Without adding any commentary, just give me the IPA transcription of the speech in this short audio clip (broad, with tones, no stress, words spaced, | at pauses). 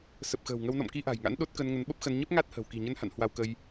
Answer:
sə˨˩p̚xə̤ː˨˩wŋə˧w nɔ̰˧˨mki˧ʔa̤˨˩jŋa̰˧˥n ɗo˦˥t̚kə˧n ŋə˨˦nɓə˦˥p̚xə˧n ɲə˦˥p̚ŋa˦˥t̚hə̤˨˩w ki̤˨˩ɲə˧nha̰˧˨n hwa˧wkə˧j